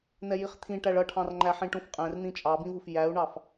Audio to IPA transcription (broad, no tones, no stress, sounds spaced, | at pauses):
n̪ ɛ j i χ t̪ʰ ĩ ʈ æ ɭ ʌ ʈʰ ɑ̃ r ŋ͡ǃ æ ħ ĩ ʈ ũ f qʼ ɛ̃ r n̪ ĩ t͡ʃʼ ɑ b ĩ v u f j æ u̯ ɳ ɑ f